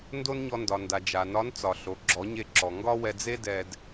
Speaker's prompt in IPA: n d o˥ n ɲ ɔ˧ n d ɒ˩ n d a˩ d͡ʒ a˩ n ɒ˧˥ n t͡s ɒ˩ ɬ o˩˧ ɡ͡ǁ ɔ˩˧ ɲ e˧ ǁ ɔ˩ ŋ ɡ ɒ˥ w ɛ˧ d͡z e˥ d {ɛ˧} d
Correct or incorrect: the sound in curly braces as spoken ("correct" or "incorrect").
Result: correct